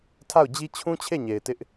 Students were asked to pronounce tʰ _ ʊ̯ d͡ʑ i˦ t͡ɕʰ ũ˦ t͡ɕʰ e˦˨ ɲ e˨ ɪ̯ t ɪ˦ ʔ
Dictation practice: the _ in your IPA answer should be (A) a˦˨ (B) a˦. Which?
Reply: A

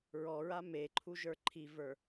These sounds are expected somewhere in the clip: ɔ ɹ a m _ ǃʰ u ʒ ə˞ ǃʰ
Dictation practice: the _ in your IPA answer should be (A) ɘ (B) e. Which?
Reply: B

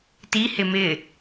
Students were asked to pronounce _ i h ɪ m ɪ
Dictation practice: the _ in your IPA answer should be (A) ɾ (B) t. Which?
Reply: B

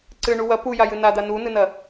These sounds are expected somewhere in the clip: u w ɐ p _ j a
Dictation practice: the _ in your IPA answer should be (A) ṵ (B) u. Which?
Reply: B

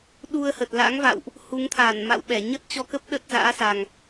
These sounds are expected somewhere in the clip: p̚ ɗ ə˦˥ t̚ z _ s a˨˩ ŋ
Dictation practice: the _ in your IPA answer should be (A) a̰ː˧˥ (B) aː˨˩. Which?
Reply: A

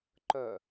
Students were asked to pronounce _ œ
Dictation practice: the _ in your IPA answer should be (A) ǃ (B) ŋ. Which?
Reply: A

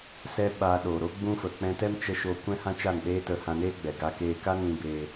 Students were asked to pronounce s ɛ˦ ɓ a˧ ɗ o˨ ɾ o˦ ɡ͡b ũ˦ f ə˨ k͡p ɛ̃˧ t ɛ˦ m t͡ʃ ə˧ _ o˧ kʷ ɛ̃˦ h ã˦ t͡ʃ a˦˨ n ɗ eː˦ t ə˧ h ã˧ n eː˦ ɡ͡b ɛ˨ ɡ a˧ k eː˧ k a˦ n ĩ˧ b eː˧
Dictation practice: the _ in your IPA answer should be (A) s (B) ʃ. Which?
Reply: B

